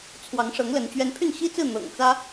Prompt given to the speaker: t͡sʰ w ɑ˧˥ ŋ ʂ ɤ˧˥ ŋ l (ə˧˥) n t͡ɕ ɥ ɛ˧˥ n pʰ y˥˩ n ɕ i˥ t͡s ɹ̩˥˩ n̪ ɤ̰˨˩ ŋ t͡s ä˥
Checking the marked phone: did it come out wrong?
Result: no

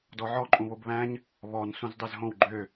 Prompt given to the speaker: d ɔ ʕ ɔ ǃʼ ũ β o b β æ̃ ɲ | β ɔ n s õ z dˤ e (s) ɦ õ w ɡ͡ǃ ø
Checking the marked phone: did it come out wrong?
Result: yes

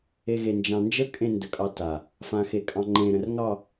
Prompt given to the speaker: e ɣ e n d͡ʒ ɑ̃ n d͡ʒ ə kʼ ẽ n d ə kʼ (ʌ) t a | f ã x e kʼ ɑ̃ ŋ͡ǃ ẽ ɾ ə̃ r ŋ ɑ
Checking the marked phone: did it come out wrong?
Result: yes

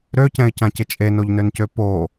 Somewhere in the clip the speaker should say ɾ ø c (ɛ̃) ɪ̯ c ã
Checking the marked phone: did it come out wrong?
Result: no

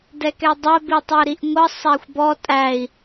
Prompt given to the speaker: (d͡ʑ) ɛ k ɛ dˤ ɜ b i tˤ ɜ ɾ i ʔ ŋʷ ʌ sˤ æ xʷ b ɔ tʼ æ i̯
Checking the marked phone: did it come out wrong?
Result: yes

